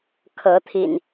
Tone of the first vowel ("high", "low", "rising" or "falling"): rising